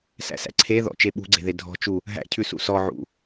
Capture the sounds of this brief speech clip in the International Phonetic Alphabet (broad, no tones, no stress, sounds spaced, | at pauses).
s æ̰ s æ̰ ǀʰ e ð ɔ̰ t͡ʃ e ɓ ṳ ɡ͡ǀ e̤ ð e dʱ ɔ̤ t͡ʃ u | ɦ æ̰ cʰ ʉ s ṵ s ɔ ʕ ṵ